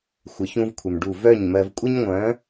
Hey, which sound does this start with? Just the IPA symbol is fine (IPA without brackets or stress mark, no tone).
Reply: xʷ